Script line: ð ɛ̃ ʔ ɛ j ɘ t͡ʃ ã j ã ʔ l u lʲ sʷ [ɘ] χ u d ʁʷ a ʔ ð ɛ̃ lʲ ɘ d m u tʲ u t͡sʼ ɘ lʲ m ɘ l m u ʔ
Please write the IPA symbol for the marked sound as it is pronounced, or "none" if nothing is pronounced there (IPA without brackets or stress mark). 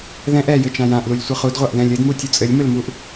ɘ